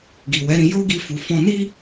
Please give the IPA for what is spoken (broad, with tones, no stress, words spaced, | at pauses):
ɡi˨wɛ˨˦ɾĩ˧ jo˦ɡi˧fu˨ fɔ̃˧ni˦